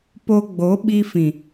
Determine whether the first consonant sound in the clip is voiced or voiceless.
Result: voiceless